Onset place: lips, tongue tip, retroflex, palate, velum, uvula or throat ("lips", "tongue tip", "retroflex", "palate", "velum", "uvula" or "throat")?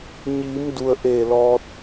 palate